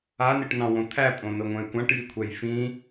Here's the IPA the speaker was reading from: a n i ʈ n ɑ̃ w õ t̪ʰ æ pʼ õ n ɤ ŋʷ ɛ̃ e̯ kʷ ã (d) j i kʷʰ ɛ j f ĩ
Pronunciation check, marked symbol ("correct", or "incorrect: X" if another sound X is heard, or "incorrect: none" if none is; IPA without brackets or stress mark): incorrect: ʈ